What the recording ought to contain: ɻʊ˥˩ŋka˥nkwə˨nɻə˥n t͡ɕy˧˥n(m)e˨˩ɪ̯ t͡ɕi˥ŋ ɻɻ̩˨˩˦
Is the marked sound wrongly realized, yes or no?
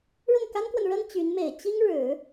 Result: no